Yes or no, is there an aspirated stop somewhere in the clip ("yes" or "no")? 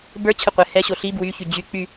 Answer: yes